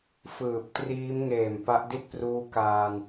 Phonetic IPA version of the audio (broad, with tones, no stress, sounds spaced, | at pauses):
f ɯː˨˩ p̚ t r iː˦˥ m ŋ eː˨˩ m p a˦˥ ʔ d i˥˩ t̚ p r uː˧ k aː˧ n